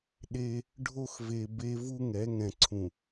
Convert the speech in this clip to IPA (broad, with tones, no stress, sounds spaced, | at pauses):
ɗ e˦ | ɖʱ o˦ x v e˨ b e˦ v u˦ ŋ ɛ˨˦ ŋ ɛ̃˨ ǀʰ ũ˨